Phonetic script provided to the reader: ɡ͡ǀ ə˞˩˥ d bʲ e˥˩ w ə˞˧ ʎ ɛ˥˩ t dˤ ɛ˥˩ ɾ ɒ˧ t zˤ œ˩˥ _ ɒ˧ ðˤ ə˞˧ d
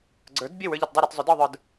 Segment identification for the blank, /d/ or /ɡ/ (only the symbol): d